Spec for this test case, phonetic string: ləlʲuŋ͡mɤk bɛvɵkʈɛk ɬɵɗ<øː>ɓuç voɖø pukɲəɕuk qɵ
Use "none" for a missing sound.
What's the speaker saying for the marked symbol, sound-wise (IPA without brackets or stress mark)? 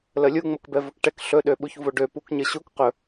ø